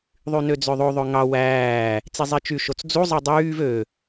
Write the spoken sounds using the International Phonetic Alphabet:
ðˤynød͡zøðˤo ðˤøŋɑ wæː | t͡sizˤit͡ʃy ʃot͡sd͡zu zˤɯdˤyːv ø

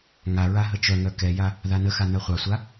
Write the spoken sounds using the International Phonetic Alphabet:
ŋaɹa ɦət͡ʃœŋœ kɛja | ðanəxa nœχʷasʷa

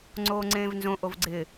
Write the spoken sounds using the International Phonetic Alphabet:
ŋ͡ǀoːŋ͡ǀẽːvnzõ ʔovɡ͡ǀɪ

